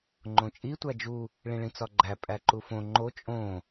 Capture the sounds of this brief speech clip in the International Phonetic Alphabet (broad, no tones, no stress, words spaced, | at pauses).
ŋ͡ǃõt͡ʃʼi tʷæd͡ʒu | ɭĩɭĩt͡sɒɡ͡ǃæ pʼæǃufõ ŋ͡ǃo t͡ʃʼõ